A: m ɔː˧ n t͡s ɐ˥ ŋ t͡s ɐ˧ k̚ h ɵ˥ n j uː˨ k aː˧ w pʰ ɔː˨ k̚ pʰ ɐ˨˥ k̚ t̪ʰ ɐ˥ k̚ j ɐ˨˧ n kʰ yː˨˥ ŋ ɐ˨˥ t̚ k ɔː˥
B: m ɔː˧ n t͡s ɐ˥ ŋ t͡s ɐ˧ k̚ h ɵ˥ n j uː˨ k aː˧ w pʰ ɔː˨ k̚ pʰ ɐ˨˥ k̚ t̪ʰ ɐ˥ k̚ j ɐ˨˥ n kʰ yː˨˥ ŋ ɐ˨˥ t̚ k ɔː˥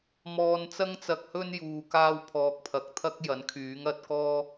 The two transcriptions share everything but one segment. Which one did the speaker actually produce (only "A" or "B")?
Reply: B